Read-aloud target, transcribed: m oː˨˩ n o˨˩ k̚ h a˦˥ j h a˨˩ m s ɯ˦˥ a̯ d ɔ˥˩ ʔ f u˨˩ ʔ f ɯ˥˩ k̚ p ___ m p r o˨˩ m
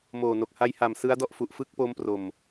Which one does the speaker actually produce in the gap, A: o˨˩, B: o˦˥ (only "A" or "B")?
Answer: B